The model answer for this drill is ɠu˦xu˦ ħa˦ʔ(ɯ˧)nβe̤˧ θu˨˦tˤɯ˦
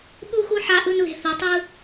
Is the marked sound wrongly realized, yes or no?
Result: yes